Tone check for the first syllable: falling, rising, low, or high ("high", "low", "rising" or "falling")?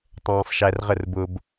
high